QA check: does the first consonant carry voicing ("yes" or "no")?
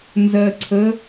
yes